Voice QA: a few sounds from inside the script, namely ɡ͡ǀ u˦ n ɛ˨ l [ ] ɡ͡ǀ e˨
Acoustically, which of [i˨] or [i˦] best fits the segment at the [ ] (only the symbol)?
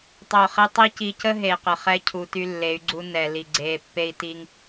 i˨